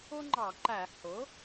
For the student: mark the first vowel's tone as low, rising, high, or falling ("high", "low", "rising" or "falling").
high